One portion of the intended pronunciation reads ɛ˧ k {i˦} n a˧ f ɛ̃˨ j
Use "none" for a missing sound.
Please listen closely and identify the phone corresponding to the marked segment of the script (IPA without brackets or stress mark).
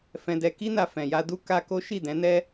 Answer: i˦